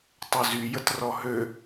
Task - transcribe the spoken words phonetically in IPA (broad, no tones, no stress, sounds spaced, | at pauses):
tˤ œ z y j ə t r ɔ ɦ ø